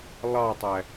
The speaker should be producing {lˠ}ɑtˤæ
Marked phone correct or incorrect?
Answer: correct